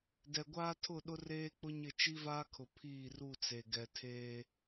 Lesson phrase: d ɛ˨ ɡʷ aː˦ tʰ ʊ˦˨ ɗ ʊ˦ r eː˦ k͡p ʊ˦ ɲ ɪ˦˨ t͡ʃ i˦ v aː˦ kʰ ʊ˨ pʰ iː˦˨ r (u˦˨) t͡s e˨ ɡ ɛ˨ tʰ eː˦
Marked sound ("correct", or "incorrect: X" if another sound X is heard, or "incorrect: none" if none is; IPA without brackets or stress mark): correct